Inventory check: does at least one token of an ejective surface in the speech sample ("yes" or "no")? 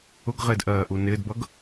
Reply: no